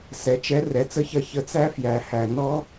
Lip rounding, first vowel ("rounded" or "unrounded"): unrounded